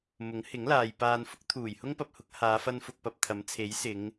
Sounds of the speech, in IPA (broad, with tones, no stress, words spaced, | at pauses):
mʊ˨˥ŋhɪ˨˥ŋlaː˨j paː˨nfʊ˥k̚ t̪ʰuː˨˩jhʊ˥ŋpɐ˧p̚hʊ˨˥k̚ haː˨˧fɐ˧nfʊ˨k̚pɐ˨p̚ t̪ʰɐ˨˥mt͡sʰe˨˥jsɪ˨˧ŋ